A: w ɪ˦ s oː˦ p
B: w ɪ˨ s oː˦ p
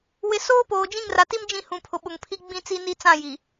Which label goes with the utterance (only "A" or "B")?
B